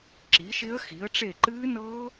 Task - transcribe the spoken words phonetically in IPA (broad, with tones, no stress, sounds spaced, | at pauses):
ǁ i˨˦ ʃ ɪ˦˥ ə̯ x i˨˦ ə̯ ʈ͡ʂ e˦˨ ǃ ɨː˦˥ n ɤː˦˥